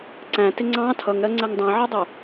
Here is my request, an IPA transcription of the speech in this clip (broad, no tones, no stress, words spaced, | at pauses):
ǀæ̃tɪ ŋ͡ǀɑ̃ tʰʌŋɾɜŋ͡ǀɜŋ dˤæ̃ʕɜdˤʊ